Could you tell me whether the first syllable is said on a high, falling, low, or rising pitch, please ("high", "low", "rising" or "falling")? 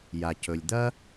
low